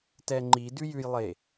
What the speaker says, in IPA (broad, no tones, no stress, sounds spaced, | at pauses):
t ɛ ŋ͡ǃ i d ʉ j ʉ j lˠ e